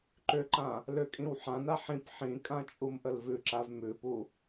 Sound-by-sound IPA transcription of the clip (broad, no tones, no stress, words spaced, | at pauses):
ǃʏǃã | lʏkʼĩw ħãna ħĩp ħĩkʼã t͡ʃʼumʔəlvʉǁav mʉpu